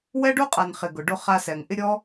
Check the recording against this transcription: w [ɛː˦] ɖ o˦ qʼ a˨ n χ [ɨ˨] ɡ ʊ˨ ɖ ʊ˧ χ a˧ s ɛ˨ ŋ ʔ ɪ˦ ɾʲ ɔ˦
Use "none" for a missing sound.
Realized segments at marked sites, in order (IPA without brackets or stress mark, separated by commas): ɛ˦, ɪ˨